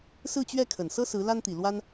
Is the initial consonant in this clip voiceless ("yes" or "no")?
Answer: yes